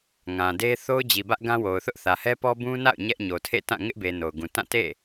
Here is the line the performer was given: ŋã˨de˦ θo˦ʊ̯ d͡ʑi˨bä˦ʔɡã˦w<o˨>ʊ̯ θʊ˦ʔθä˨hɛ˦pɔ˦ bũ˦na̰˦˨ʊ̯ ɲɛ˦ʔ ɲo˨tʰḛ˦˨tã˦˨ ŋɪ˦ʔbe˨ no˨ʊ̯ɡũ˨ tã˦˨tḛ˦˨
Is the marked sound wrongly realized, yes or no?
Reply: no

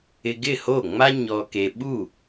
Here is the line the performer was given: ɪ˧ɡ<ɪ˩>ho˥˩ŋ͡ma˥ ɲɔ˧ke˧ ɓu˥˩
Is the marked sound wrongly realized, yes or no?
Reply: yes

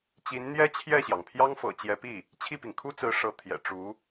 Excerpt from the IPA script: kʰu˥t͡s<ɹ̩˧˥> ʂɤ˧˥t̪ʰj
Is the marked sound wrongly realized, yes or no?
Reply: no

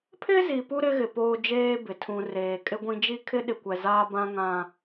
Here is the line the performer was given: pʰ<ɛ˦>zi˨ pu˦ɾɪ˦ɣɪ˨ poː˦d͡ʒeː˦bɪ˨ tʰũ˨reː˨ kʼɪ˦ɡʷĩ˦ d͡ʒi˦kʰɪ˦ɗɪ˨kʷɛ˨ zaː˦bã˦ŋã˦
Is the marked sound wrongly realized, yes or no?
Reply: yes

